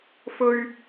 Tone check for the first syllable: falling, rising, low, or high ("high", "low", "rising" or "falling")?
high